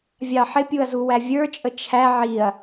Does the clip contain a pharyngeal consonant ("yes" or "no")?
yes